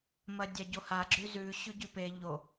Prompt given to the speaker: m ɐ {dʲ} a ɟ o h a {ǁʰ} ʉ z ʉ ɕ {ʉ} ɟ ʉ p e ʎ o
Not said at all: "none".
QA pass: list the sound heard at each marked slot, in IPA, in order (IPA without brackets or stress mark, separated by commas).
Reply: dʲ, ɡ͡ǁ, ʉ